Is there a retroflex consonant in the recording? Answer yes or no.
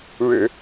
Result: yes